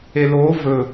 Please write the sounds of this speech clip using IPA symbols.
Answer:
e l oː v ɵ

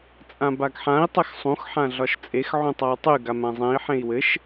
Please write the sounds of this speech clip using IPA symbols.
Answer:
t͡sʼ ã b a ɡ ħ ã i̯ tˤ ɘ x sˤ ũ x ħ ã ɮ ɒ ʃ t͡sʼ e x ʕ ũ tˤ a w tˤ y ɡ a m ã zˤ ẽ i̯ ħ ẽ i̯ w ɘ ʃ

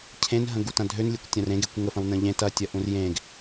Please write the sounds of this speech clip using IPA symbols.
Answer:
cʰ ẽ n ɦ ə̃ ɡ u t ɐ̃ dʱ ø n lʲ e kʷ tʲ ɐ̃ r ẽ ɡ e kʷ ŋ ə f ɐ̃ w n ə̃ ʎ ẽ t ɐ tʲ ɐ ʔ ũ r j ẽ ɡ

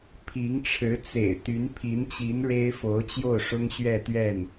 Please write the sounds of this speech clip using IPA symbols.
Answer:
pʰ i˧˥ ŋ ʈ͡ʂʰ ɻ̩˧˥ t͡s ḛ˨˩ ɪ̯ t̪ y˧˥ n pʰ i˧˥ n t͡ɕ i˧˥ n ɻ e˥ ɪ̯ f o˧˥ ʊ̯ t͡ɕ j o˥˩ ʊ̯ ʂ ʊ˥ ŋ ɕ ɥ ɛ˥˧ t̪ ɥ ɛ˥˩ n

